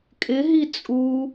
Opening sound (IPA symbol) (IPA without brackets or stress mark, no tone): kʼ